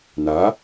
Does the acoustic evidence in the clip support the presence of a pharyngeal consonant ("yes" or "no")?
no